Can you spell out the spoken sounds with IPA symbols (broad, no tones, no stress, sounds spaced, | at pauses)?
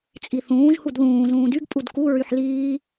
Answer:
t͡sʼ i θ ũː ʒ h u d ð ũː z ũː d y ɡ pʼ u d k u ɹ y ħ l iː